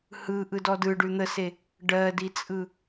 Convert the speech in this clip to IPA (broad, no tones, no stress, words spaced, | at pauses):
hɯʔɯdɔ dɯɖʉ n̪əse | ɖɜdit͡sʼɯ